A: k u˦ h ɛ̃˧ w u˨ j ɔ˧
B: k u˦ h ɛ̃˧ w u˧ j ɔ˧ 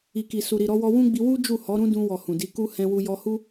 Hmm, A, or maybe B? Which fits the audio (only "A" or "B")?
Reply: B